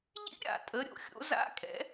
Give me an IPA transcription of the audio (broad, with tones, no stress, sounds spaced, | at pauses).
ʎ ḭ˦˥ ɾʲ a̰˩˧ tʼ ə˩˧ ɾʲ o̰˩˧ xʲ o̰˨˥ z a̰˦˥ kʼ ɛ̰˨˥